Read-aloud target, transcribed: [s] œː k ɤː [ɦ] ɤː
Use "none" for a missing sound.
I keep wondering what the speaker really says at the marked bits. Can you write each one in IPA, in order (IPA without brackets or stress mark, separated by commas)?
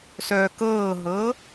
s, ɦ